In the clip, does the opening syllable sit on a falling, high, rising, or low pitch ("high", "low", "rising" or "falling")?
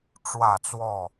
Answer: falling